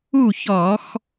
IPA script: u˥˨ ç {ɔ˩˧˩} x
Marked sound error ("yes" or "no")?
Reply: yes